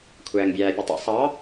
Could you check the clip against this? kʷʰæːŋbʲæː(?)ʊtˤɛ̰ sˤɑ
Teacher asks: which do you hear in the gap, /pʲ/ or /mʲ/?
pʲ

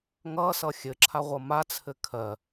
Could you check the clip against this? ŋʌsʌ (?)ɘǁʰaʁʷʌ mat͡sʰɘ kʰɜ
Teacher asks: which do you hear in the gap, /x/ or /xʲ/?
xʲ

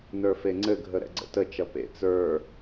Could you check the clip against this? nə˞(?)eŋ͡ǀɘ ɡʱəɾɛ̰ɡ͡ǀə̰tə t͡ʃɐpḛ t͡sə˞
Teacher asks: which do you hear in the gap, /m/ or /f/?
f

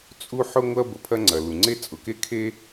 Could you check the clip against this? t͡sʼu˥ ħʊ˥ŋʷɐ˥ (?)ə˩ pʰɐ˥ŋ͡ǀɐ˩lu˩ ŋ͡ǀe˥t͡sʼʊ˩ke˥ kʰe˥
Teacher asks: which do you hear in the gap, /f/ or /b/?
b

